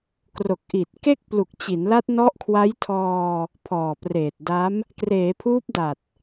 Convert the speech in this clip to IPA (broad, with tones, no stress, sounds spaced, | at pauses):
k r o˨˩ k̚ ʔ i˨˩ t̚ k e˥˩ k̚ p l u˨˩ k̚ t͡ɕ i˩˦ n l a˦˥ t̚ n ɔ˦˥ ʔ kʰ w a˦˥ j tʰ ɔː˧ | pʰ ɔː˨˩ p r eː˨˩ t̚ d a˦˥ m | k r eː˩˦ pʰ uː˦˥ p̚ d a˨˩ t̚